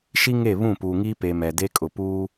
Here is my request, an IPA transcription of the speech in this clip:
ʃ i˦ ŋ e˦˨ β ũ˦˨ p uː˨ ŋ iː˦ p e˨ m ɛ˨ d e˦ kʼ ʊ˨ p uː˦

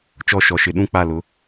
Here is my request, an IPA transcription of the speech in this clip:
t͡ʃ ɔ˦˨ ʃ ɔ˨ ʃ ɪ˨˦ ɗ ũ˦ k͡p a˦˨ l ʊ˨˦

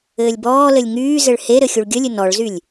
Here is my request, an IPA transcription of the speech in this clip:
ɘː lʲ b ɔː l ɘ lʲ ŋ yː z ɘ ɭ h e ɾ ɘ xʲ u ɭ ɡʲ ə lʲ ɘ n ɔ ɭ z y lʲ

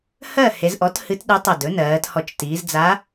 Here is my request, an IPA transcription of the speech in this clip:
h ɜ˥˨ h e˩˧ z ʔ ɔ˩˥ t h ɨ˧˥ t ɗ ɨ˧˥ tˤ ə˧˩ d ɵ˩˥ n ɜː˩˧ t h ɔ˧˩ t͡ʃ t iː˩˧ z d͡z a˧˥

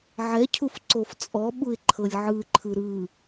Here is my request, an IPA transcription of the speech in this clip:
ʕ ɛ cʰ u f ǀ o f t͡sʼ ɔ ɓ u ɪ̯ ǃʰ ɤ lʲ ʕ ɯ ǃʰ ɯ ɾ ɯ

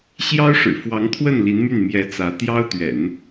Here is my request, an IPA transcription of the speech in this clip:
ɕ j ɑ˥ ʊ̯ ʂ ɻ̩˨˩ f w ɑ˧˥ ŋ t̪ʰ w ə˥˩ n l i˧˥ n m y˥˩ n m j ɛ˧˥ t͡s ä˧˥ t̪ j ɑ˥ ʊ̯ t̪ ɥ ɛ̰˨˩˦ n

